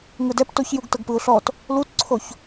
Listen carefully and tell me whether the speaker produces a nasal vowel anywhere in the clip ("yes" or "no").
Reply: no